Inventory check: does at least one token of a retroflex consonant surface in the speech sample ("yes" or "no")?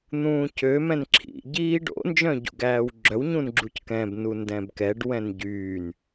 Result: yes